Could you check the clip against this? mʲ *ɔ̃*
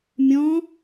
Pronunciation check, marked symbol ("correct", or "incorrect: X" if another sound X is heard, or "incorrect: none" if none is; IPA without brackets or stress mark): correct